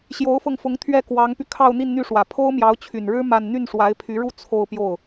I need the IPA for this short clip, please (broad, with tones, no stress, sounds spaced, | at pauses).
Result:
ɕ j o˧˥ ʊ̯ f ɤ˧ ŋ f ʊ˧˥ ŋ t̪ʰ ɥ ɛ˥˩ k w ɑ˧˥ ŋ p y˧ kʰ ɑ˥˧ ʊ̯ n̪ i˥˧ n n̪ y˥˩ ʂ w ä˨˩ pʰ o˥ ʊ̯ m j ɑ˧˥ ʊ̯ t͡ɕʰ y˨˩ n ɻ ɻ̩˥ m a˥˧ n n̪ y˥˩ n ʂ w a˧˥ ɪ̯ pʰ y˧˥ ɻ u˥˧ t͡sʰ o˥˧ ʊ̯ p j o˥˩ ʊ̯